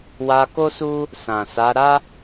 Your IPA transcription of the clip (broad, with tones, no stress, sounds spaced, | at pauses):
w a˧ k o˦ s u˦ | s ã˨ s a˨˦ ɾ a˦